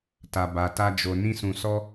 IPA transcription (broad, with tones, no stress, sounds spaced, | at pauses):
t a˨ b a˨ t a˧ d͡ʒ o˨ n ĩ˧ s ũ˨ s ɔ˧